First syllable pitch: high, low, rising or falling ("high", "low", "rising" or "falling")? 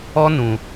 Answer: high